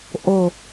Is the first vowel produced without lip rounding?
no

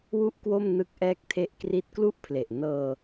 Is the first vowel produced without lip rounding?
no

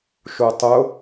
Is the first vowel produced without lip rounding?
no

